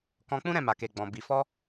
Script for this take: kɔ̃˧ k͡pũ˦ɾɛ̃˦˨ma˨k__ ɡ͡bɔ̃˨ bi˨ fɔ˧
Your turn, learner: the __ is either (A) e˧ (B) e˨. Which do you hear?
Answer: B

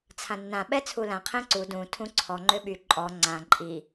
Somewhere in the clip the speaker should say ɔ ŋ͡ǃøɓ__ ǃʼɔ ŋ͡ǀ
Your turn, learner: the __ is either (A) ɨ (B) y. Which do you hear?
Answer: B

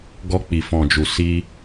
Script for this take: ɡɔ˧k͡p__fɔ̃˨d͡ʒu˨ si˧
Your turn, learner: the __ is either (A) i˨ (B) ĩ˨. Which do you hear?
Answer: A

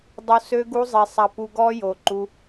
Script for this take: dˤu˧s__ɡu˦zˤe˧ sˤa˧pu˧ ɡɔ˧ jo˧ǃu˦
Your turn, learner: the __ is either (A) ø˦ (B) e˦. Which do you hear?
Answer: A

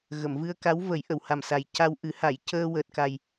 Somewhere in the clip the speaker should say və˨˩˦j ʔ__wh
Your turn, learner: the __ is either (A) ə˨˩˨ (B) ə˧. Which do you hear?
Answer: A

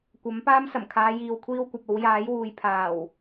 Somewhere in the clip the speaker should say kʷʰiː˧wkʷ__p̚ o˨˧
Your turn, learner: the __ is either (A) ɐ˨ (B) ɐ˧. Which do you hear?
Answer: A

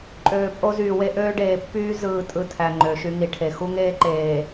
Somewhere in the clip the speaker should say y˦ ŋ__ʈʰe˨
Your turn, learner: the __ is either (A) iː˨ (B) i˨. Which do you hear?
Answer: B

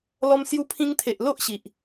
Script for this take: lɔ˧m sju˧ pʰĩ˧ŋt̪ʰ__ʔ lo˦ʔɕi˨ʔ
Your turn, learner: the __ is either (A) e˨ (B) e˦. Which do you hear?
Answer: A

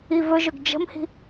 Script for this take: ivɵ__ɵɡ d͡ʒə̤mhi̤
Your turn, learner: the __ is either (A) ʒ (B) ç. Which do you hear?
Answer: A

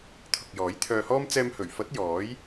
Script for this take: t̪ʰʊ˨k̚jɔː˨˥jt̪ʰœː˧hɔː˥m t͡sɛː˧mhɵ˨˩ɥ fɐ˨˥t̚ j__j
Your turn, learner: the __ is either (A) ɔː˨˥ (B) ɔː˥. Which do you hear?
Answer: A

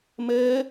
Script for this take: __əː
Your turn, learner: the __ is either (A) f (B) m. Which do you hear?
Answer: B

